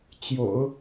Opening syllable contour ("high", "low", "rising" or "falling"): low